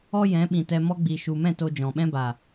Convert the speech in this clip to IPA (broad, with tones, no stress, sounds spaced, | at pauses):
ɔ˦ j ɛ̃˨˦ ɓ ĩ˨ t ɛ˧ m ɔ˦ ɡ͡b iː˨ ʃ u˨ m ɛ̃˦˨ t o˧ d͡ʒ ɔ̃˨ ɓ ɛ̃˦ b a˨